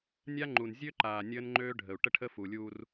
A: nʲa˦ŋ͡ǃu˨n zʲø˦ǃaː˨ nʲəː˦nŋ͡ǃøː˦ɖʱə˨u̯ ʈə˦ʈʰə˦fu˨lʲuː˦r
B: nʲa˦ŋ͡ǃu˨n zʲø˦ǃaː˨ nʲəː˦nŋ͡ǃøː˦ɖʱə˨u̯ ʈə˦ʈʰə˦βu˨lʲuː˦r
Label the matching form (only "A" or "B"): A